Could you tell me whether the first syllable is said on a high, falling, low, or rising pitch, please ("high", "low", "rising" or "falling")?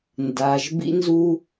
low